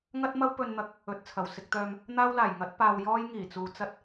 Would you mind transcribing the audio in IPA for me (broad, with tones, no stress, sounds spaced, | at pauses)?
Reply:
ŋ ɐ˥ t̚ m ɐ˥ w p ɵ˧ n n̪ ɐ˨˥ k̚ | ɵ˨ t̚ t͡sʰ ɐ˨˩ w s ɪ˧ k̚ t̪ œː˧ m | n̪ aː˥ w l aː˨˩ j ŋ ɐ˨˥ t̚ p aː˧ w j ɔː˥ j ŋ iː˨˩ t͡s uː˨ t͡s ɐ˥ t̚